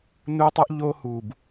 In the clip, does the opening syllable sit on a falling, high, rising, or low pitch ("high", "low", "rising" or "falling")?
high